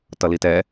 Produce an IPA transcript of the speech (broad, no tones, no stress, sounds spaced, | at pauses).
t ʌ l i t ɛ